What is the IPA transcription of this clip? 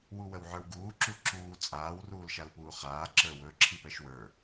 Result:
w u w ə w ʕ ə˞ w ɡ uː ǁ u ǁ uː t͡sʼ aː w r uː l ʃ a l p uː χ aː ǁ ə˞ w ɵ ǁʰ i p ɛ ʃ w ə˞

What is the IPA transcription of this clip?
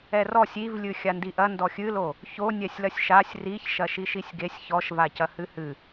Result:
ɛ r ɔ sʲ i v lʲ ɨ xʲ a n d i ʔ ɐ n d ɔ xʲ ɨ l o | ç o nʲ ɛ sʲ l ɐ sʲ ʃ a sʲ r i ç ʃ ɐ ʃ i ʃ i sʲ ɡ e sʲ ç ɔ ʃ v a c ɐ h ɨ h ɨ

